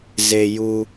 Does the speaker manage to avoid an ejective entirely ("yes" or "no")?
yes